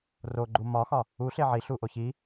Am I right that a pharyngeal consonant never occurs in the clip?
no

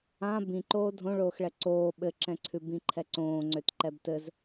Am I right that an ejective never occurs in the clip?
yes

